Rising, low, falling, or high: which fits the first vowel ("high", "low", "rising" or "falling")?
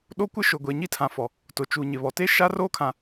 high